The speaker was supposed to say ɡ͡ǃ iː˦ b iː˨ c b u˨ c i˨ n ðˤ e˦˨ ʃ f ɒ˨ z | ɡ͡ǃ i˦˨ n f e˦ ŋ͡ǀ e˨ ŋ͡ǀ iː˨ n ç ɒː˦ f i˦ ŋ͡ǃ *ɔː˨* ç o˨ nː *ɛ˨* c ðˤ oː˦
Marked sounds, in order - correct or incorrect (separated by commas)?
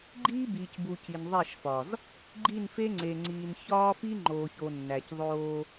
incorrect, incorrect